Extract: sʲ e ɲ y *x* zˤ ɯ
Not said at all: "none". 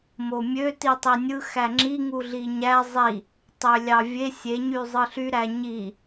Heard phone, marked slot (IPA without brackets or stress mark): none